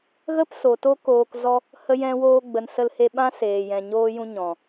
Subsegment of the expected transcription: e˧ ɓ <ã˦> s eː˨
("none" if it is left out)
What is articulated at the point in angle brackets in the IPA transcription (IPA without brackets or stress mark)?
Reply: ã˦